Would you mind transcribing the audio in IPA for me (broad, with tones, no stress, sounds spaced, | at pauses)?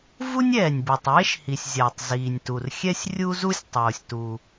v u˥ nʲ ɛː˩ nʲ b e˩ tˤ j e˥ ʃ h i˩ sʲ zʲ a˩ tˤ z iː˩ nʲ t u˩ r xʲ ɛ˥ sʲ rʲ u˥ z u˥ sʲ tˤ oː˩ sʲ t u˩